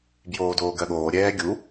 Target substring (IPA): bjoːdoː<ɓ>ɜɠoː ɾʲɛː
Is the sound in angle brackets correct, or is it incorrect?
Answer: incorrect